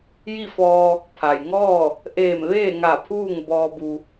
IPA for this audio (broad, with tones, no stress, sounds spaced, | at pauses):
j i˥˨ f ɔː˧ | pʰ a˩ j ŋ ɔː˥˨ | ʔ eː˧˩ m ʋ eː˥˨ ŋ a˧˩ pʰ uː˥˨ ŋ b ɔː˧ b u˧